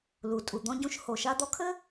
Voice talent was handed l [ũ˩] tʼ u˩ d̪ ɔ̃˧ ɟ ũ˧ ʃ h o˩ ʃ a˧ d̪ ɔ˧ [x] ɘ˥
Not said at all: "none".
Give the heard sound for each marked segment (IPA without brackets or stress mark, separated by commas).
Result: u˩, kʰ